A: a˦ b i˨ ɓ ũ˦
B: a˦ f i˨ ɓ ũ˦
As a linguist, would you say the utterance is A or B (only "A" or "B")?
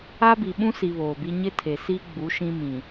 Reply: A